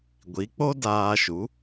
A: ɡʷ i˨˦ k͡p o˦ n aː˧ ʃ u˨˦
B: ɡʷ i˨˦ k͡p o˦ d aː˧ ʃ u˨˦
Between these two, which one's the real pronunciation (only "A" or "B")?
B